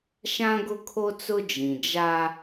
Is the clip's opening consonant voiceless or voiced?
voiceless